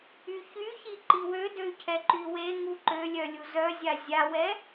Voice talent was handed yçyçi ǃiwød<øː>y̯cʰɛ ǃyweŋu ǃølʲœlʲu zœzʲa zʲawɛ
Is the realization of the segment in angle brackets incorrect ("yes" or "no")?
yes